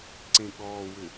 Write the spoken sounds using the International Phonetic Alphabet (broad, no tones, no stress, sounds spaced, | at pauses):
ǀ ẽ ɠ ɔː w ʏ